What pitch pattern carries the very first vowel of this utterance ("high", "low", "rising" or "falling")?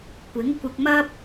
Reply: rising